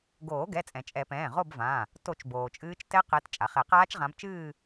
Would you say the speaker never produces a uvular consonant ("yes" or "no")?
no